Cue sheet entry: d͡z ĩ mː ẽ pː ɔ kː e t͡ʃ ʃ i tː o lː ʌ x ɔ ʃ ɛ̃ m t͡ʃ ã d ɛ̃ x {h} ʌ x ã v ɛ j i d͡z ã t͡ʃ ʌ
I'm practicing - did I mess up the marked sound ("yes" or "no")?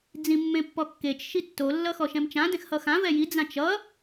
no